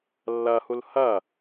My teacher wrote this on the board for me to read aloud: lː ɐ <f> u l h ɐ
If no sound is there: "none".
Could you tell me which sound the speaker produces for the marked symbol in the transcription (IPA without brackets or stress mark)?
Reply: h